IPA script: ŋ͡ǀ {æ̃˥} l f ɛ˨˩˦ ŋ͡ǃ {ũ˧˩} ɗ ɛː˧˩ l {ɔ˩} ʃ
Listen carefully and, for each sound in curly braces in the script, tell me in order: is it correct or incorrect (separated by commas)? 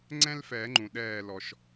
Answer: incorrect, incorrect, correct